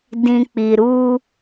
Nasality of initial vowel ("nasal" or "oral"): nasal